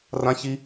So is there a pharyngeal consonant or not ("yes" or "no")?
no